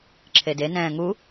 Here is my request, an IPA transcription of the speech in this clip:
ǁʰedenɛ̃ː ŋu

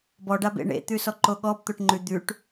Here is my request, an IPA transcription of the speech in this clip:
bɔɖabḛ ɳḛt̪ʉsɔǃo ɠɔbt̪oʈ ŋ͡ǃʉ d̪ʉʈ

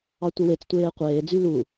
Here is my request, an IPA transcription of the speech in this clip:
ɑtʷewet͡s tʷeːqʷeː d͡zylu

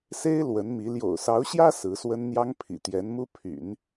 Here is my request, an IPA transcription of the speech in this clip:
se˥ɪ̯ lwə˧˥nmi˧˥ ljo̰˨˩ʊ̯sɑ˧˥ʊ̯ɕjä˥ sɹ̩˧˥swə˥n n̪jɑ˥ŋpʰḭ˨˩t̪jɛ˧˥nmu˥ pʰy̰˨˩˦n

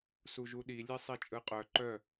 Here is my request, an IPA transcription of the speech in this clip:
suʒuɗi lʲesˤit͡ʃʼɯqʼœ ǃœ

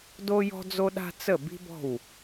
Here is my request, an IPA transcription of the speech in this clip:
do˦jɔ̤˦d͡zo˦ɗa̤˦ t͡sə˦˨ bi̤˦bɔ̤˦˨w

